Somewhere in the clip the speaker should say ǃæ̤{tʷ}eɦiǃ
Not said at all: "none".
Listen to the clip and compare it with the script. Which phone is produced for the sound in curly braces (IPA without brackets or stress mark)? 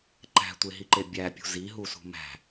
tʷ